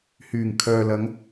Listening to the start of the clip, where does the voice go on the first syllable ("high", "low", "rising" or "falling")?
low